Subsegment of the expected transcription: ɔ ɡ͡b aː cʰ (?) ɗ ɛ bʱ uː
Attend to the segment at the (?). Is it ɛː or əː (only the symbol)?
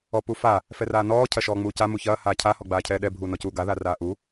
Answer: ɛː